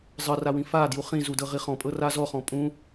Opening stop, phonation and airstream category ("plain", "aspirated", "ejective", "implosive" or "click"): plain